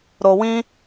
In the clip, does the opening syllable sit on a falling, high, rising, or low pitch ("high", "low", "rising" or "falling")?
low